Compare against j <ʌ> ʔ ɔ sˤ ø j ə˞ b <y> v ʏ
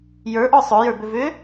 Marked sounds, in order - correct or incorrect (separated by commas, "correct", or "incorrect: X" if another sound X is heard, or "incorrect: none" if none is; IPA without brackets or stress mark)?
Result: incorrect: ə˞, incorrect: ʏ